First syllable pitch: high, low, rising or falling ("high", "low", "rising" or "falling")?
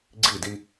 falling